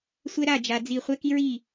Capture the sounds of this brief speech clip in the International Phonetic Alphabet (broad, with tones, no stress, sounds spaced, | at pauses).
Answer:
sʷ ɛ˦ ɾ a˦˨ d͡ʒ a˧ d͡z i˦˨ χʷ ɛ˦ k i˦ ɹ i˦˨